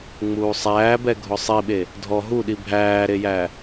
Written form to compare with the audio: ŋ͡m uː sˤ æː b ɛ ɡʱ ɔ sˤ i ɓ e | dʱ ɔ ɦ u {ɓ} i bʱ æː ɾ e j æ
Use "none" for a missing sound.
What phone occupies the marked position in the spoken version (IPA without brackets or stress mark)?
ɗ